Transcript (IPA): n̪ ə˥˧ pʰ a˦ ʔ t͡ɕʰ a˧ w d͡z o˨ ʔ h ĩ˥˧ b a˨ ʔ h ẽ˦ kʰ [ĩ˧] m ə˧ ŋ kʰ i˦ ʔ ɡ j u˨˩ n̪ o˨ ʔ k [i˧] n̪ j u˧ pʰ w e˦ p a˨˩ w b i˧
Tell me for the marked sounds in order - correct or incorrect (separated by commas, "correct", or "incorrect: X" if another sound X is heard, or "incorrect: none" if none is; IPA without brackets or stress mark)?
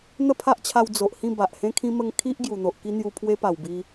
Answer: incorrect: ĩ˦, incorrect: i˦